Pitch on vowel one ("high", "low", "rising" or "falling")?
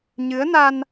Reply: rising